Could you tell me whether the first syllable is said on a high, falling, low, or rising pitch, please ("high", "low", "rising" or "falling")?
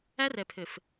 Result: high